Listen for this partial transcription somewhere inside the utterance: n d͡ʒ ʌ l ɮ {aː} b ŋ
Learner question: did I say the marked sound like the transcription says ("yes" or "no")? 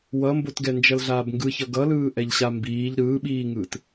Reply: yes